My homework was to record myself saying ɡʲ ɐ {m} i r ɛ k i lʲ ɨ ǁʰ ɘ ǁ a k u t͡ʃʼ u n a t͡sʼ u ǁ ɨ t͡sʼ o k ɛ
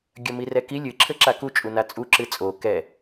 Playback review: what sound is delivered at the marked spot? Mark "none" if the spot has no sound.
m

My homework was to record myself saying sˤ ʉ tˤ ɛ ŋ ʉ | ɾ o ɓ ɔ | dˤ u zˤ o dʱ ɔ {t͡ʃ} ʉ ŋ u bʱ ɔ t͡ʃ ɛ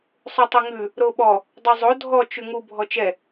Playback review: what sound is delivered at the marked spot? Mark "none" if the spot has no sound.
t͡ʃ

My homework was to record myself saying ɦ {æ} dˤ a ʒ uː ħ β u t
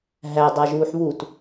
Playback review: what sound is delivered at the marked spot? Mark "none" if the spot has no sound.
æ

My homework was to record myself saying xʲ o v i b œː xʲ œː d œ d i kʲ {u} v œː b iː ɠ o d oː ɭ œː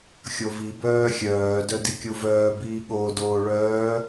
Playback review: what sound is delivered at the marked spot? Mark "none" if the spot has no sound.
u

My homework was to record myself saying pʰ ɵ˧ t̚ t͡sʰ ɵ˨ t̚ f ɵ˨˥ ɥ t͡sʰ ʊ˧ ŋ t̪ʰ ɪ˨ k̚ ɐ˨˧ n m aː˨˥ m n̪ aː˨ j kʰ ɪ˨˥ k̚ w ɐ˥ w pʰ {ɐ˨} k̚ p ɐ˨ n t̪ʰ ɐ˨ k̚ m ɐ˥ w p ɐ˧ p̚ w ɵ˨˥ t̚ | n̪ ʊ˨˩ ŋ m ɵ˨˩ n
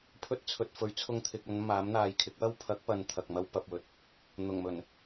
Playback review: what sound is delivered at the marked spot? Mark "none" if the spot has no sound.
ɐ˨˥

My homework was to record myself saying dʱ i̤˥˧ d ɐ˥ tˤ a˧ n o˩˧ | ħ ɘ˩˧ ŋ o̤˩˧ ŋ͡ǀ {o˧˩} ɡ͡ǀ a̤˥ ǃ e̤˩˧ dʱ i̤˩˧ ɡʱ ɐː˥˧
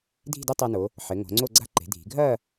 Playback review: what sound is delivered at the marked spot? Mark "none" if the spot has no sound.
o˥˧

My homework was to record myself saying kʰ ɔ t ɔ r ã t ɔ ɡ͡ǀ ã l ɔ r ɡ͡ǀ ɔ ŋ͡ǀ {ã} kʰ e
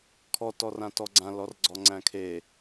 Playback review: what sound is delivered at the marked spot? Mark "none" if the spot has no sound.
æ̃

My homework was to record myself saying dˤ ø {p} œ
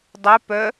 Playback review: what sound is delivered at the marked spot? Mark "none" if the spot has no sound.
p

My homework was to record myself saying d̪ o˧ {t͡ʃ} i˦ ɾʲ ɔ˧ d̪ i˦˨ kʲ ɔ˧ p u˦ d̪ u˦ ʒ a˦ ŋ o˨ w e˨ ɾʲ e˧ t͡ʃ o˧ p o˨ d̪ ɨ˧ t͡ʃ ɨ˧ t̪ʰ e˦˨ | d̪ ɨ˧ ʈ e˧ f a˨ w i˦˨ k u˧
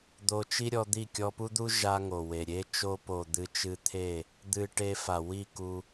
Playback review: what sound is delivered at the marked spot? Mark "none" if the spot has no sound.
t͡ʃ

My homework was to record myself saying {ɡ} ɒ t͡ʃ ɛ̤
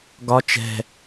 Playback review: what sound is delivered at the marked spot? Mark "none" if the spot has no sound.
ɡ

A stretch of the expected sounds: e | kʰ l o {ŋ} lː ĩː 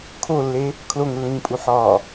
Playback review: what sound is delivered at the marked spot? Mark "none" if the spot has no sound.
ŋ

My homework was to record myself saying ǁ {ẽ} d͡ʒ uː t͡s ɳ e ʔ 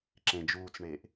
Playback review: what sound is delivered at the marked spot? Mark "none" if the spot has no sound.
ẽ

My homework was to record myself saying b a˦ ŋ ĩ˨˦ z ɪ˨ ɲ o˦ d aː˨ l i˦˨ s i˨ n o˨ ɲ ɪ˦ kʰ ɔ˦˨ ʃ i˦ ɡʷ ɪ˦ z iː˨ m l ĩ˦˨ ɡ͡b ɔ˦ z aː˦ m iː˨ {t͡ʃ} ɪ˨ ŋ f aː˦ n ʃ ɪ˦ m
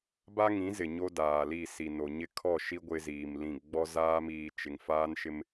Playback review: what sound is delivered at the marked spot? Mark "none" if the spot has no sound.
t͡ʃ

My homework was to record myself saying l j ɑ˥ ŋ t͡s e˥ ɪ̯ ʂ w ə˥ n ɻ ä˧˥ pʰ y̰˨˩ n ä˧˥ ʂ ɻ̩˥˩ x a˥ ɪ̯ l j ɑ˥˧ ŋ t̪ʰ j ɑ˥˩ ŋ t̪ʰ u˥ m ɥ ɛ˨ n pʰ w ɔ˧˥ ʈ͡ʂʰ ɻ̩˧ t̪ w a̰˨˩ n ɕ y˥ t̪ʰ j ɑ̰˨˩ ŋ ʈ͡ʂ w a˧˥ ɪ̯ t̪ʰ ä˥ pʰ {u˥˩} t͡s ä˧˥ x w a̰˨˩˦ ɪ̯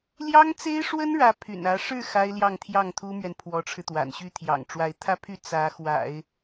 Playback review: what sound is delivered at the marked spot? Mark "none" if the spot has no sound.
y˥˩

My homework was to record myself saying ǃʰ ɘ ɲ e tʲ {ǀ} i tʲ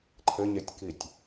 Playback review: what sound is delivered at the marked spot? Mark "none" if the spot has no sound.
k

